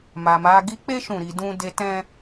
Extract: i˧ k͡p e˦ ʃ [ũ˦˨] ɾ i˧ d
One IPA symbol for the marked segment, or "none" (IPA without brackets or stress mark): ũ˦˨